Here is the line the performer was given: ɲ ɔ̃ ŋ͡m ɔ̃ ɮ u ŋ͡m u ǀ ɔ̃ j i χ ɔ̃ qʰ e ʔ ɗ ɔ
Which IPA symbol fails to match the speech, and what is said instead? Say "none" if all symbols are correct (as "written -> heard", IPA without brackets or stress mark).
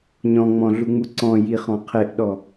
none